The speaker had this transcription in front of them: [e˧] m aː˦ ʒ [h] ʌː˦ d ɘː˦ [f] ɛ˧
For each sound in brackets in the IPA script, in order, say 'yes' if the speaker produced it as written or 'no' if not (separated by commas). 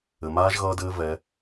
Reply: no, no, no